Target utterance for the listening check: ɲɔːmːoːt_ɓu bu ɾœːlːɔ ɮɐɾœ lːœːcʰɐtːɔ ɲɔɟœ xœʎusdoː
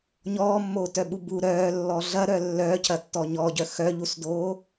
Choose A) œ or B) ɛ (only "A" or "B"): A